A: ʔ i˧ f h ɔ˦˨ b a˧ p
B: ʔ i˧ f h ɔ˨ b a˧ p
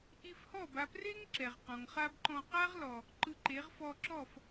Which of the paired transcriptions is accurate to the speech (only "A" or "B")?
A